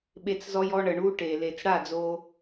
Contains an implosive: yes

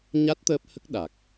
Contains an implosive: yes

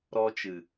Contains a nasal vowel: no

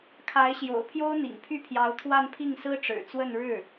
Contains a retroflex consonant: yes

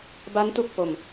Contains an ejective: no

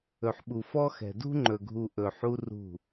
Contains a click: yes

